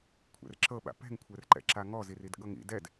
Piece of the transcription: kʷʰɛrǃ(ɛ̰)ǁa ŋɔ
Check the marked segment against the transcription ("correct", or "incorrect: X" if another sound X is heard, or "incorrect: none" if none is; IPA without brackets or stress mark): correct